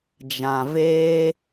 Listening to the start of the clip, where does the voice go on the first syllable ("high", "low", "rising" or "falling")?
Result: low